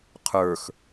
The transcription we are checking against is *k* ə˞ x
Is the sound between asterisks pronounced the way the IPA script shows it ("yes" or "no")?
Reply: no